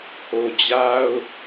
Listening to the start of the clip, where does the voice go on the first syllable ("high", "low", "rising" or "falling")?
low